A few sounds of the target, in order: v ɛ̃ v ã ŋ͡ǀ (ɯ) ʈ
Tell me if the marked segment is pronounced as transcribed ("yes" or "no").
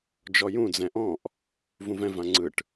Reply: yes